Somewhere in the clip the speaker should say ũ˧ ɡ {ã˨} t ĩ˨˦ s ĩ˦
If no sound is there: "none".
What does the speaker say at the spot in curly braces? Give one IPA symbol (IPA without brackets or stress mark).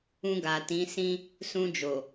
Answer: a˨